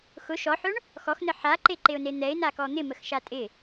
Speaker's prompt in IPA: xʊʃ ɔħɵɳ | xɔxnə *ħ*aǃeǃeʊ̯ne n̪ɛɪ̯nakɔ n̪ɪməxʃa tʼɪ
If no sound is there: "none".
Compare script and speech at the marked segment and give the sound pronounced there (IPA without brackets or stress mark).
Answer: ħ